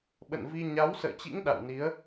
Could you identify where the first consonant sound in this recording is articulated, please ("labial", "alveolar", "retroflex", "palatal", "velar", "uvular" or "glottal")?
labial